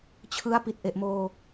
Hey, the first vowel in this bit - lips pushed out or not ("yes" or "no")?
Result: no